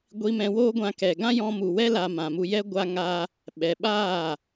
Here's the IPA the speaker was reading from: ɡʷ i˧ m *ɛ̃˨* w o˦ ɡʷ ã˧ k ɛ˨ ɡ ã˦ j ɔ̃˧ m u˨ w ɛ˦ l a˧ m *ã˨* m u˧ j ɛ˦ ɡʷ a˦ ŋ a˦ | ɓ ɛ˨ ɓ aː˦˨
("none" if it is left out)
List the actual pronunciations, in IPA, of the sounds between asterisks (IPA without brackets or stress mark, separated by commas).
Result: ɛ̃˧, ã˨